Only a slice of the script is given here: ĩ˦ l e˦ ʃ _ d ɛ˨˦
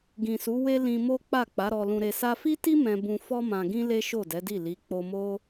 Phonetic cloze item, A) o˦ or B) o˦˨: B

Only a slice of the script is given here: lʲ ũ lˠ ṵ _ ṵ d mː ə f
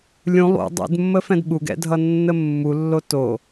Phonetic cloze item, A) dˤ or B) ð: A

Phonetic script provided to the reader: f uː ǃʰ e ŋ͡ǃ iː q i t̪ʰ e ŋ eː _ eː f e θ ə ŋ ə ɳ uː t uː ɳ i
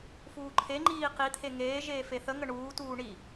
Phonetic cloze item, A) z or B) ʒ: B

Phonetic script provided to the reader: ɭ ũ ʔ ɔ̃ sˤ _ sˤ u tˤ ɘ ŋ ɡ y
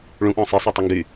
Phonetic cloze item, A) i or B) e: B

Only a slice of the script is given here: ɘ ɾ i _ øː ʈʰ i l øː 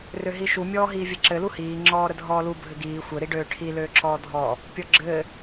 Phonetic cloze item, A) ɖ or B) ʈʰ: A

